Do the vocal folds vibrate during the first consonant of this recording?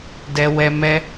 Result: yes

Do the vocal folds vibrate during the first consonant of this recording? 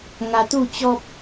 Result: yes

